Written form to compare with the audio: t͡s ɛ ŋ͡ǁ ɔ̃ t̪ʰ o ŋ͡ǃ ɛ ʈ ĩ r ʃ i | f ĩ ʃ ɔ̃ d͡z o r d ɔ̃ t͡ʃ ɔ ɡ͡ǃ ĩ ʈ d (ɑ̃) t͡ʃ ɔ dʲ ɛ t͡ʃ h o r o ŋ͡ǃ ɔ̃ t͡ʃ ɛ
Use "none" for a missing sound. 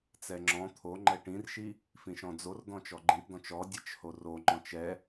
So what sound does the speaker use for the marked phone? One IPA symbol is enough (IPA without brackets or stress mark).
ɔ̃